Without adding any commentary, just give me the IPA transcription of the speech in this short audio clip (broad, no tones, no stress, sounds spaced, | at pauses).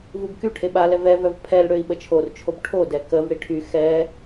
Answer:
v u b k y ʈʰ e ɓ a l ɛ v ɛ v œ v pʰ ɛ l ɽ ø i̯ ɓ ə t͡ʃʰ o r t͡ʃʰ o b ʈʰ o d ɛ k ə v ɽ i ʈʰ y x ɛ